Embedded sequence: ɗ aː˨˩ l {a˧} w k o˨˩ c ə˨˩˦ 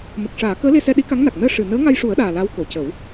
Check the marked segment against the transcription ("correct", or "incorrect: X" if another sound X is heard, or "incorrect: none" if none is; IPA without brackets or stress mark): incorrect: a˧˥